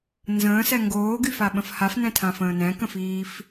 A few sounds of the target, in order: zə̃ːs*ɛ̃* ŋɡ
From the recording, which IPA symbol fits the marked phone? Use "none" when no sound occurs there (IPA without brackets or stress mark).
ɛ